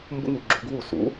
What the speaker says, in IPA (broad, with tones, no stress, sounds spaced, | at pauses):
m b ṵ˥ ŋ u˩˥ ɡ͡ǁ u˩˥ ɡ w u˥˩ s ṵ˩˥